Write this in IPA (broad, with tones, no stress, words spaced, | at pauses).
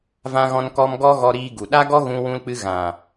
vã˦ɣɔ̃˦nkɔ˦m ɡɔ˦ɣɔ˧ɾiː˧ ɡu˨ɗa˦ɡɔ˦ ɣũ˧wũ˧lk͡pɨ˧ ɣã˨